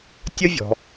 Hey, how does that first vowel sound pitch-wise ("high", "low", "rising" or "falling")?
high